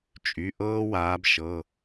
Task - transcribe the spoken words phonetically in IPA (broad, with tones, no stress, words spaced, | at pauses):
t͡ʃʼy˩˧˩ʔɤː˥waː˨˦b ʃɤ˩˧˩